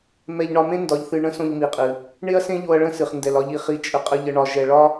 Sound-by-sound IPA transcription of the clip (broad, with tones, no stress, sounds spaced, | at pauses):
m ɛ˧ ʎ ɳ ɒ˧ m ẽ˦ n d ɒ˧ ʎ θ ɨ˧ ɳ ə̃˦ s õ˧ ʎ m i˨ qʼ ɨ˨ | ɳ e˦ ɐ̯ s ẽ˦ ʎ o˧ ɐ̯ ɭ ə̃˦ s ɨ˨ χ n d ɛ˨ l ɒ˧ ʎ i˨ χ i˧ t͡ʃʼ ə˧ qʼ ə˧ ʎ ə˧ ɳ ɒ˧ ʒ ɛ˧ ɭ ɒ˦